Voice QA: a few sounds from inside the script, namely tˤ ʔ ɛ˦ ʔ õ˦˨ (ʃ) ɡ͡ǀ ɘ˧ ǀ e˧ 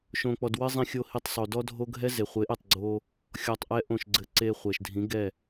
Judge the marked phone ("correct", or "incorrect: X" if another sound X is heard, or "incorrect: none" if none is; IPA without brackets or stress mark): correct